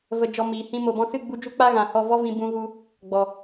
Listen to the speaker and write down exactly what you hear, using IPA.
v ə˧ d͡ʒ ɔ˧ m iː˨ h ĩ˦ m o˨ b ɔ̃˧ s ɨ˦˨ ɡ͡b u˧ d͡ʒ u˦ k͡p a˦ ɣ ã˨ h ɔ˦˨ v ɔ˦ v ĩ˧ b ũ˧ ɣ u˧ | ɡ͡b ɔ˨

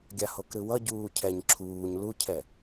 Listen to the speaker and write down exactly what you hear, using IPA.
ɡʲ a h o k ɾ ɯ w ʌ ɟ uː cʰ ɛ ɲ ǁʰ uː ɲ l u cʰ ɛ

